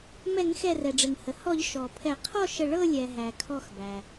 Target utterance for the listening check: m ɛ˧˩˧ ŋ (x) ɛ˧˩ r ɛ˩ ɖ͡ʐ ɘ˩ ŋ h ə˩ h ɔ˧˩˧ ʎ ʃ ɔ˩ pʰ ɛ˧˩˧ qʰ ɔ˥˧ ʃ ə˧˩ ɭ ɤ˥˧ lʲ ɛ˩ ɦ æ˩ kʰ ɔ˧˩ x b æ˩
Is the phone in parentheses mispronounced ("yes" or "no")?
no